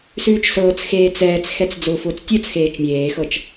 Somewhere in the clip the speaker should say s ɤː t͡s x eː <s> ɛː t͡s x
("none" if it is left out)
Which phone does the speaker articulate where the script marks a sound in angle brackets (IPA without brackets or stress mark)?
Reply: t͡s